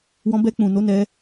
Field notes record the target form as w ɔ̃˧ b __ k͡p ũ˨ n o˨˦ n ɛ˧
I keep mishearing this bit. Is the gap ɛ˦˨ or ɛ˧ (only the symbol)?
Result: ɛ˧